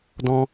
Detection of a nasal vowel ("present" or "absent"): present